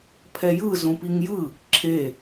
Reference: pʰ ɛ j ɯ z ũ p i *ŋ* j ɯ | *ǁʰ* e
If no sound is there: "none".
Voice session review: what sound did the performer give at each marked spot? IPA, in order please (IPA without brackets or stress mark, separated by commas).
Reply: ŋ, ǁʰ